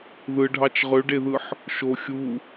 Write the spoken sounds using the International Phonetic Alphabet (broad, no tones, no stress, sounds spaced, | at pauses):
ð ɯ ɖʱ ɑ t͡ʃ ʁ ø ɖ e ð ɯ ħ | ʃ o xʲ u